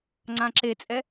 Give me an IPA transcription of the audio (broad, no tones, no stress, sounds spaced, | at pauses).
ŋ͡ǀ ã ǁ e t͡sʼ ɛ